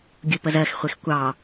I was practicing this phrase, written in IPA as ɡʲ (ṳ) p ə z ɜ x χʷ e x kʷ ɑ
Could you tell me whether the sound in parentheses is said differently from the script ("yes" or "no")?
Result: yes